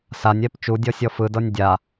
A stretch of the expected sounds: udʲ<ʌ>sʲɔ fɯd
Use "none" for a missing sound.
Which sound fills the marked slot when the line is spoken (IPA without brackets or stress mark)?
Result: ɔ